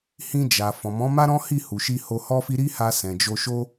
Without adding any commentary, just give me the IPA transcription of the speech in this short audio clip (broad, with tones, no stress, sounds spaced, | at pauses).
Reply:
h ĩ˧ d͡ʒ a˨ f ɔ̃˨ m ɔ̃˨˦ m a˦ ɾ ɔ̃˦ h i˦˨ h u˨ ʃ i˧ h o˧ h ɔ˦ f i˦ ɾ i˦ h a˧ s ɛ̃˨ d͡ʒ o˧ ʃ o˦